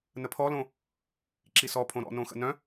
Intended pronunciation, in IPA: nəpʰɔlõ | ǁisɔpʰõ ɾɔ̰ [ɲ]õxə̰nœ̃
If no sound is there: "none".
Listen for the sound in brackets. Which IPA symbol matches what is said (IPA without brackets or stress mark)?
n